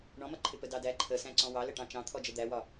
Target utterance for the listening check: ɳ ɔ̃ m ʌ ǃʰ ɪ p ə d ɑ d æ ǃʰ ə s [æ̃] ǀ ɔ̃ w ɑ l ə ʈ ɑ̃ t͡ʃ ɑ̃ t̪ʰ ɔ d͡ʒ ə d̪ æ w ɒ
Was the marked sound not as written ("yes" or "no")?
no